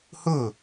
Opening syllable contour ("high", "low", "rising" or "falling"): falling